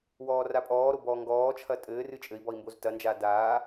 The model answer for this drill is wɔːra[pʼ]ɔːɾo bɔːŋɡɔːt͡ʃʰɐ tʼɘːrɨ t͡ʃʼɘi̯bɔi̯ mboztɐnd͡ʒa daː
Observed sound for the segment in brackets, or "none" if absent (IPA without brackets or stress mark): pʼ